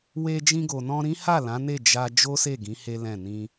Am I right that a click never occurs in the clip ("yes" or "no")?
yes